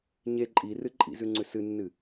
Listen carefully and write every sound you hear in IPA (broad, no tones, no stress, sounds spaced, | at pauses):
ɲ e ǃʼ i r ɨ ǃʼ ḭ z ʉ ŋ͡ǀ ʉ s ɨ nː ɨ